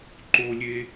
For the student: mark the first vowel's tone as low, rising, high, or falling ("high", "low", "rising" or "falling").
high